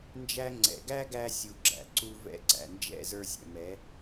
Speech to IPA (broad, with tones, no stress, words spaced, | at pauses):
nd͡ʒæ˧ŋ͡ǀɛ̰˨ɡæ˦ɡæ˧ sʲu˨ɡ͡ǁæ̰˨ ǀu˧ vɛ̰˦˨ǀæ̰˨nd͡ʒɛ̰˦˨ zə˞˧sʲɛ̰˨mɛ˨˦